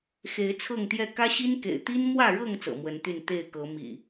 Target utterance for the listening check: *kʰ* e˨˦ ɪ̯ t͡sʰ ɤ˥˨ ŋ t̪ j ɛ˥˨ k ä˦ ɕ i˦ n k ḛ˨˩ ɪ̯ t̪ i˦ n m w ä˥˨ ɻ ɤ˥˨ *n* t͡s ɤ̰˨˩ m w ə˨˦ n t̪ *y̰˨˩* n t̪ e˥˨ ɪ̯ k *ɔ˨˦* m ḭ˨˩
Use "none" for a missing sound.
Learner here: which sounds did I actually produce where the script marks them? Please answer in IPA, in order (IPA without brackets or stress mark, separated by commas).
x, ŋ, y˥˨, ɤ˨˦